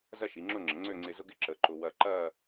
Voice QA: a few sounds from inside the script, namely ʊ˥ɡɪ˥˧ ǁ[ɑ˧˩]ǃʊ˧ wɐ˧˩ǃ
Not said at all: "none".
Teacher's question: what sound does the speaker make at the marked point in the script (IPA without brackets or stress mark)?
ə˧˩